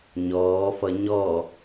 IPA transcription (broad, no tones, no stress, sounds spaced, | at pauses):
ɲ ɔː f ʌ ɲ ɔ